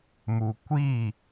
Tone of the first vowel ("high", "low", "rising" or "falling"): low